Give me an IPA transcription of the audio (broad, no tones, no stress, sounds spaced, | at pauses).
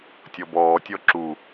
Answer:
tʲ ɔ b ɔː tʲ ɔ ǁ u